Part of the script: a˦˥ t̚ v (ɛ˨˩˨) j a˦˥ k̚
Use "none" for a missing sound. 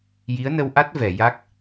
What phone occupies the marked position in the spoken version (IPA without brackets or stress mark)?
ɛ˨˩˨